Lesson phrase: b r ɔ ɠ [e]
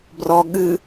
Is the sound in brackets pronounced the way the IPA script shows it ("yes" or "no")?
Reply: no